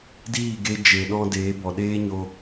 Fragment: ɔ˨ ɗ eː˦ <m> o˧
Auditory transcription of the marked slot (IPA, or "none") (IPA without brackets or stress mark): ɲ